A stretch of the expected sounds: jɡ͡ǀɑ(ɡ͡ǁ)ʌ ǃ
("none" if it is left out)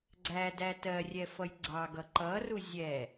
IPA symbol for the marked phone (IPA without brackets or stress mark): ɡ